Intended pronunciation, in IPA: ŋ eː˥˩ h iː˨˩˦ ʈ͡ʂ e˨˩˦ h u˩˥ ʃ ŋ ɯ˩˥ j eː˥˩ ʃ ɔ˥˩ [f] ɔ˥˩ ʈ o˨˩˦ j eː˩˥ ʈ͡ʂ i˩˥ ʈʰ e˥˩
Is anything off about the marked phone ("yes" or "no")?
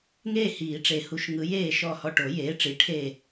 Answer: yes